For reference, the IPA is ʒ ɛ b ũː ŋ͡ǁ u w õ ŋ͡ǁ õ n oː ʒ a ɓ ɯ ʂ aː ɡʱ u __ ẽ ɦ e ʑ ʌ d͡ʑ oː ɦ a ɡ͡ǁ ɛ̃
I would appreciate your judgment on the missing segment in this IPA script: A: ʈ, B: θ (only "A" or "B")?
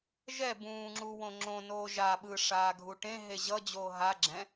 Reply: A